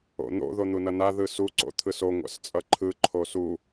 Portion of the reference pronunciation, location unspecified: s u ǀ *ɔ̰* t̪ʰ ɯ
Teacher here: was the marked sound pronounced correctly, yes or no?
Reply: no